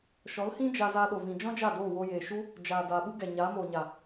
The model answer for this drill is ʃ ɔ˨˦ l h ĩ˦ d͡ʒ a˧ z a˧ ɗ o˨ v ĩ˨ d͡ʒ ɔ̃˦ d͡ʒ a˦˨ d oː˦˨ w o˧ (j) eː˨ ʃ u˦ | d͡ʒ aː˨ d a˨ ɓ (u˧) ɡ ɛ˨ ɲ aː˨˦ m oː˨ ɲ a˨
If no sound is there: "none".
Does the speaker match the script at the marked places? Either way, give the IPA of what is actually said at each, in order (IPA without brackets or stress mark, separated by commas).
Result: j, u˦